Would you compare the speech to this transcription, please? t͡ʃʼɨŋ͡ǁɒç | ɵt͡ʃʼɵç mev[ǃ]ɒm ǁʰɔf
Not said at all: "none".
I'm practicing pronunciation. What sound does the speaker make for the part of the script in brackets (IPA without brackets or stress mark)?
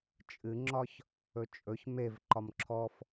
ǃ